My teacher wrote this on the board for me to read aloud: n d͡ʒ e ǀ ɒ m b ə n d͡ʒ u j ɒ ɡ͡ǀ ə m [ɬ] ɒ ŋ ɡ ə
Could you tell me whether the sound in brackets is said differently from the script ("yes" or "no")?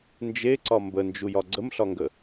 no